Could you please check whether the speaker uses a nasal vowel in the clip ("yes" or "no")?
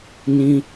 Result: yes